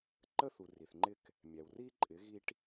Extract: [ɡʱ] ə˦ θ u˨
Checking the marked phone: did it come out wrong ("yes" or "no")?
yes